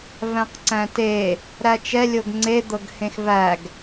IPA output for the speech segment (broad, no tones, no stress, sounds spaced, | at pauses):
v æ̃ q ǀ æ̃ t e | ɾ æ t͡ʃ ɛ lʲ o ɡ ŋ͡ǀ e d̪ ɤ ɡ h ẽ x v æ ɡ